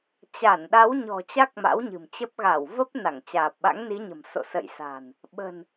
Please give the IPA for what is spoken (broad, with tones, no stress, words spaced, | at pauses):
t͡ɕa˧˩nɗa˨˦wɲɔ̤˨˩ t͡ɕa˦˥k̚ma̰˧˥wɲɨ̤˨˩mt͡ɕə˦˥p̚ ɣa˧˩w və˦˥p̚na˧˩ŋ t͡ɕaː˨˩p̚ɓa̰˧˥ŋni˨˦ɲə̤˨˩m so̰˧˨sə̰˧˨jsa̤˨˩n | ɓə̤˨˩n